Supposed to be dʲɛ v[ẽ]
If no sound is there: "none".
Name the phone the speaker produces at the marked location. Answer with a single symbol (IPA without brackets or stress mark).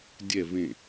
ẽ